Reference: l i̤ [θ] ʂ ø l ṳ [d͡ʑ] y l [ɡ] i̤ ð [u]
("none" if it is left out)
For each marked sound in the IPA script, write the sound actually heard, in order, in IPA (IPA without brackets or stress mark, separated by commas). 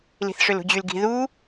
θ, d͡ʑ, ɡ, u